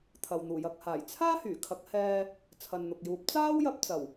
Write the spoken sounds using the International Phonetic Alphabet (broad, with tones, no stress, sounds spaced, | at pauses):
t̪ʰ ɐ˨ w n̪ uː˨˩ j ɐ˨ k̚ h aː˨˩ j t͡sʰ aː˥ h yː˨˩ kʰ ɐ˨˥ k̚ h ɛː˧ | t͡sʰ ɐ˨ n n̪ ʊ˨ k̚ j uː˨˥ p̚ t͡s aː˥ w j ɐ˧ p̚ t͡s ɐ˨˩ w